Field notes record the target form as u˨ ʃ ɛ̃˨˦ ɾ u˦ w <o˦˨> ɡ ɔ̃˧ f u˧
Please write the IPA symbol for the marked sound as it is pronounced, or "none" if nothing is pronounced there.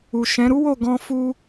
o˦˨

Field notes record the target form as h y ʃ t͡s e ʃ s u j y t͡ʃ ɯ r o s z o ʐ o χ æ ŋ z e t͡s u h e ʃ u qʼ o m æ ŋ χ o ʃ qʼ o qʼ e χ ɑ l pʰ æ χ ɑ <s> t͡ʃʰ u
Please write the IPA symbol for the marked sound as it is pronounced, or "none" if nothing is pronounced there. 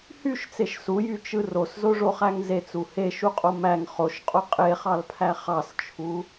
s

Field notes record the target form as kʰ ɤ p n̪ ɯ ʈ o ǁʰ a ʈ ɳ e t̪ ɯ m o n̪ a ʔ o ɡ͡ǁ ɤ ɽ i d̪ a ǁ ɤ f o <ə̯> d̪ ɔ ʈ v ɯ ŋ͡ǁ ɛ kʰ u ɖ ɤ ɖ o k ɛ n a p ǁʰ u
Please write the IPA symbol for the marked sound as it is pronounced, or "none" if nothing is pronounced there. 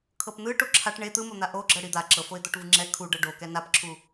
ɪ̯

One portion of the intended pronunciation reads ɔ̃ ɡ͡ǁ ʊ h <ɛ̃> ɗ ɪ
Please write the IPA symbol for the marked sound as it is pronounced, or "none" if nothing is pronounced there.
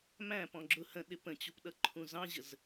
ə̃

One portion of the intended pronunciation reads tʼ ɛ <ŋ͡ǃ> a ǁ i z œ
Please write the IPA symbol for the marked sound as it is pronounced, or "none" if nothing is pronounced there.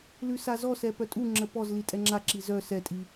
ŋ͡ǁ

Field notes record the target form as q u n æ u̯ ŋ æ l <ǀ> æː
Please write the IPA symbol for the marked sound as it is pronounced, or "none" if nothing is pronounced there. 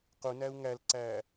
ǀ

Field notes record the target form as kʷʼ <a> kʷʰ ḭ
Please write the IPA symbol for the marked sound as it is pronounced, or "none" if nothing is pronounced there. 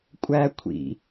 æ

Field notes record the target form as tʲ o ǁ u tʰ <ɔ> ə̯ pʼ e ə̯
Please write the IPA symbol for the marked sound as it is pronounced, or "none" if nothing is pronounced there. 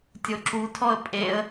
ɔ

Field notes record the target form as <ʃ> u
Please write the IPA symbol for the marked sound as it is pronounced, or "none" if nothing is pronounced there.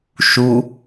ʃ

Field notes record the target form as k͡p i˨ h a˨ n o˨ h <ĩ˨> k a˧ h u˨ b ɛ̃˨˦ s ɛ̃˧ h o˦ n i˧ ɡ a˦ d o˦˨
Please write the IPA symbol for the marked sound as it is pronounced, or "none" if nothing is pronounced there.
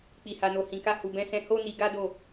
ĩ˨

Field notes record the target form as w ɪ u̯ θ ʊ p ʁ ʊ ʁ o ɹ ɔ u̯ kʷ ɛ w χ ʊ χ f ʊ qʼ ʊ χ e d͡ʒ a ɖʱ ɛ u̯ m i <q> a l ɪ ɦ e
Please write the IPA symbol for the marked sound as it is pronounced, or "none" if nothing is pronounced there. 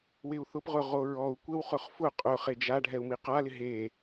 q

